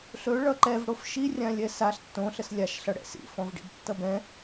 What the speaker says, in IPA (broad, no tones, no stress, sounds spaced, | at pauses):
ɬ ɵ ɭ ʌ ǃ ɛ v ɽ o f ʃ i rʲ ã lʲ ɛ s a ɬ tː õ ɬ ə s lʲ a ʃ ɬ ʌ ɽ ɛ̰ s ḭ f ɔ̃ v ɖ ḭ b tː ʌ b ɛ̃